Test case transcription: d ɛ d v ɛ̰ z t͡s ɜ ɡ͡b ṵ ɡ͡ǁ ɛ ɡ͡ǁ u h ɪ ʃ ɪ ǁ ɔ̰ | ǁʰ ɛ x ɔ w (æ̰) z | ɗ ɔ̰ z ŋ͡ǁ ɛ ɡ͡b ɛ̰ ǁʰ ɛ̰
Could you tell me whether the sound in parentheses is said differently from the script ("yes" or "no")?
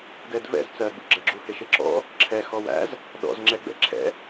no